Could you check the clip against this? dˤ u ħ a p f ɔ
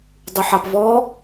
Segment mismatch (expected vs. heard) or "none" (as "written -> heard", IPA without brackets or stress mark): f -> v